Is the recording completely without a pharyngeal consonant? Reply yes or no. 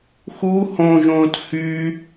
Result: yes